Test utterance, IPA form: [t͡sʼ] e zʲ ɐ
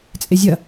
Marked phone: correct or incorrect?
correct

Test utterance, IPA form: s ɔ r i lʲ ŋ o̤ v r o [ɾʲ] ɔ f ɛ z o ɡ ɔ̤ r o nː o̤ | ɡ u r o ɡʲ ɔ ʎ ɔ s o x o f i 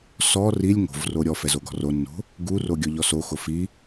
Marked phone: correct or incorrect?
correct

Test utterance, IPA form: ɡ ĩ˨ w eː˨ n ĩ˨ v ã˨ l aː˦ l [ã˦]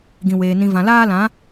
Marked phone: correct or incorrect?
incorrect: ã˨˦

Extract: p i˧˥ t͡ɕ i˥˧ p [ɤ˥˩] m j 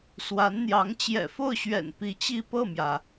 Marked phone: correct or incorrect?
correct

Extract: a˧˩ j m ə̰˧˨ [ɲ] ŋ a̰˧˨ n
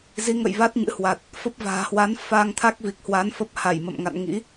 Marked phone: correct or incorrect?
incorrect: m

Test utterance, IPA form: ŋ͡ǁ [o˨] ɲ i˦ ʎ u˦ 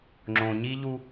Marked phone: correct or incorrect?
incorrect: õ˨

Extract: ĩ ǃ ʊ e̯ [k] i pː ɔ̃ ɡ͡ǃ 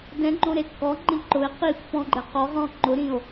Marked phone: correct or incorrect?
incorrect: q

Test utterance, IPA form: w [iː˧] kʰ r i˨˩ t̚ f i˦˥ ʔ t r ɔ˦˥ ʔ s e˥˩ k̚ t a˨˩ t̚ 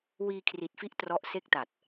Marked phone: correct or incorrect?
correct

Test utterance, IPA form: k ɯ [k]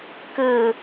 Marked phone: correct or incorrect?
incorrect: none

